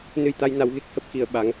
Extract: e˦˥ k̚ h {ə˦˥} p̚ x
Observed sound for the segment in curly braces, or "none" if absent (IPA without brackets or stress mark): ə˦˥